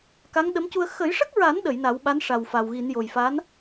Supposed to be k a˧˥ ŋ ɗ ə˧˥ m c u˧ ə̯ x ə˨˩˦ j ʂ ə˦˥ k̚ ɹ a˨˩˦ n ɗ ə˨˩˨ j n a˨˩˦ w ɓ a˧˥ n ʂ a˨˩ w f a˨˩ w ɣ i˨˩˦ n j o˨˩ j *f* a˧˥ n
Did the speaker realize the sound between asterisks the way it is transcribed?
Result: yes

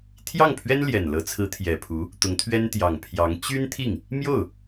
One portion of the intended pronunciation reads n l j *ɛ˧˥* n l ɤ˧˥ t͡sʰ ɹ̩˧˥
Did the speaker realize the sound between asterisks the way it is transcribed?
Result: no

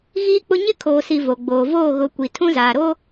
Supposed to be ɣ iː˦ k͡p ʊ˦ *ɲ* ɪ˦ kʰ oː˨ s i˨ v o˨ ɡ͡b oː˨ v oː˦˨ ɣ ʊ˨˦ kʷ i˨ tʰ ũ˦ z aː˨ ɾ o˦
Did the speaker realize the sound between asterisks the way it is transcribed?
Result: yes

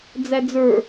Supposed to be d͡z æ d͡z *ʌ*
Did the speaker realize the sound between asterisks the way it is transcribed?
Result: no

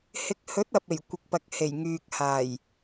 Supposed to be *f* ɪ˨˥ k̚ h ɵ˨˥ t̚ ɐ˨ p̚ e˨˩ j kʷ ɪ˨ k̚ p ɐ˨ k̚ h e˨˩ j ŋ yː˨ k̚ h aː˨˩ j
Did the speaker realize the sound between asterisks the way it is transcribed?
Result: no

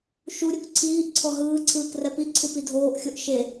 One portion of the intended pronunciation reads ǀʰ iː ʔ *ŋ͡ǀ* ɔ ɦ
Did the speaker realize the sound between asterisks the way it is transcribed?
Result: no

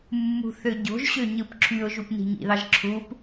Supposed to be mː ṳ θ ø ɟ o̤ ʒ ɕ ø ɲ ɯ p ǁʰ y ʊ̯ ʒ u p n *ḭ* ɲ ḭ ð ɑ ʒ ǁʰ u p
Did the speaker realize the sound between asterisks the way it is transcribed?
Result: no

